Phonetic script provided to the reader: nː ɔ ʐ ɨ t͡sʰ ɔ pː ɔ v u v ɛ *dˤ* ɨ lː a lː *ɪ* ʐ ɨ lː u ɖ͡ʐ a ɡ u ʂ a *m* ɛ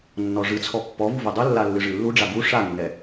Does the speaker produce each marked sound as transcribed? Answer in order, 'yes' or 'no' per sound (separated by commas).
yes, no, no